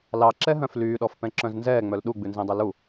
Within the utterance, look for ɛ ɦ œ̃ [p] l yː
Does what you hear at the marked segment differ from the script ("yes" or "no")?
yes